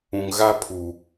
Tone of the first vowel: low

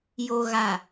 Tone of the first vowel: low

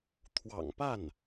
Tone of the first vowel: low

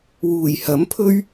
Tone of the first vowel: low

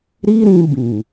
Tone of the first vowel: high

